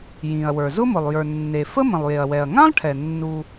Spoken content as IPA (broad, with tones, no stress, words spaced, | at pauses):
jĩ˩ɐ̯wə˞˩ zʊ˥mʊ˩lˠ jə˞˩ nːe˩fə˥ mə̃˩lˠje˩ɐ̯ wɛ˩ɐ̯ŋã˥lˠʈʰɛ˩ nːu˩